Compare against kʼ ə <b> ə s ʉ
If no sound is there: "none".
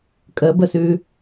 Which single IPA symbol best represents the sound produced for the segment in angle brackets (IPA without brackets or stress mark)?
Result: b